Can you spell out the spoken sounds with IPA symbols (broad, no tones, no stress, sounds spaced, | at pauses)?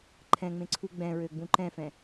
ǃʰ ɛ̃ ŋ͡m ẽ ǀʰ u ɡ͡b ɛ̃ ɹ ø ɡ͡b ũ ǃ ɛ̃ f ɛ̃